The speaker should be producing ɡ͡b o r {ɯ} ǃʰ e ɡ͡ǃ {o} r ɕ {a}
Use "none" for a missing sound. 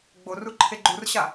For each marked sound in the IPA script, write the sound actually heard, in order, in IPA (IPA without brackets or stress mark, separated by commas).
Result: u, u, a